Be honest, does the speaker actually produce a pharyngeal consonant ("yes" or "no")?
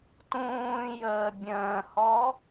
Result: no